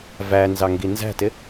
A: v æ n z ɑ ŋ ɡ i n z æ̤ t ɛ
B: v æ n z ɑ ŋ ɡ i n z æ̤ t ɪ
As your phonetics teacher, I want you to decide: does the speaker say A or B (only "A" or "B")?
B